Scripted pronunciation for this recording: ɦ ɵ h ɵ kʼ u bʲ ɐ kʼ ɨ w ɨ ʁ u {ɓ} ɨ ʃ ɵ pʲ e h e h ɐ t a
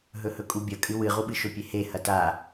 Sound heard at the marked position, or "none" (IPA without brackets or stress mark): ɓ